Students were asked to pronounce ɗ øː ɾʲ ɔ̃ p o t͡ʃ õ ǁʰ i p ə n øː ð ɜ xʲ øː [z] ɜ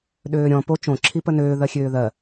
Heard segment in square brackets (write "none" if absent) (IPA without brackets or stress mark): ð